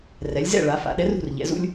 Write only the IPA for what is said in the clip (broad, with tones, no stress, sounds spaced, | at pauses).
r ɛ˩˧ lʲ z ɛ̰˥˨ ɭ a˩˧ f a̰˩˧ ɗ ɛ˨˥ r ṳ˥˨ r ʎ ɛ̰˩˧ z ṵ˦ lʲ